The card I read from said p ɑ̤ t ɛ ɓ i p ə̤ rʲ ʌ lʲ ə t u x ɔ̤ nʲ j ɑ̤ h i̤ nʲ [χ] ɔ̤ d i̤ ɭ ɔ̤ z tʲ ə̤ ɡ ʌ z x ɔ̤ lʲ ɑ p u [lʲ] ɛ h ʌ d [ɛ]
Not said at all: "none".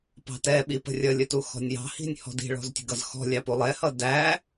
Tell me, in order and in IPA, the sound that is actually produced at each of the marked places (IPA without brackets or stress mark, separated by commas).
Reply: h, lˠ, æ